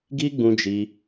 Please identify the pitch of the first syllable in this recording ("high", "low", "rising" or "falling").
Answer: high